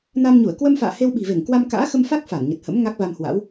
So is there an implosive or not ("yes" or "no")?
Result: yes